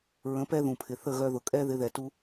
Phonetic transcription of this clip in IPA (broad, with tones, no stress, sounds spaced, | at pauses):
ɹ ə̃˨˦ p ɛ˦ ð ũ˨ pʰ ɪ˨ θ ə˦˨ ɣ œ˧ ð ʊ˨ kʼ ɛ˦ ð ɪ˨˦ ð ɛ˨ t u˧